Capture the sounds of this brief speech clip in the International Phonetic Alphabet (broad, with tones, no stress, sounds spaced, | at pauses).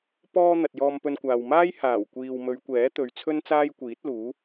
p ɔː˧ n̪ ɐ˨ t̚ j ɔː˧ m p ɵ˧ n kʷ aː˨ w m aː˥ j h aː˨˩ w kʷ iː˨ w m ɵ˨˧ ɥ kʷ ɛː˨˥ t̪ ɵ˨˧ ɥ t͡sʰ ɵ˥ n t͡s aː˥ j kʷ iː˨˥ t̚ l uː˨˥